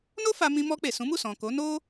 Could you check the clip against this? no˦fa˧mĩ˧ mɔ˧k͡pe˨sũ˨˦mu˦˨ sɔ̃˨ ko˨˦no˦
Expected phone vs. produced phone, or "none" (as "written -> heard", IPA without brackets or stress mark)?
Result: none